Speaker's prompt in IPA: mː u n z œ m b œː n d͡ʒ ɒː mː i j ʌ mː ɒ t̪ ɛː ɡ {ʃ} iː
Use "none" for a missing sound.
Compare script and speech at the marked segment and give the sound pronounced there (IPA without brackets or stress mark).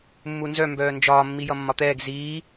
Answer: z